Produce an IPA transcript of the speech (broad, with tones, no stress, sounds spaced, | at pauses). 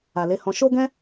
a˨ l e˨˦ h ɔ̃˧ ʃ o˦ ɡ ɛ̃˦